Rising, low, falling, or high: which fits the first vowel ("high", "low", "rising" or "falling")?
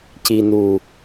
low